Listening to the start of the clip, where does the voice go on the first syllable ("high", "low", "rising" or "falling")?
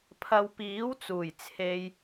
low